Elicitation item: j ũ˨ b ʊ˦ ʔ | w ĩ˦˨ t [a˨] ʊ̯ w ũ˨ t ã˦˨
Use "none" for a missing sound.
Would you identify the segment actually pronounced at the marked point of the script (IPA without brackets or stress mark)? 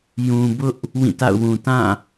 a̰˦˨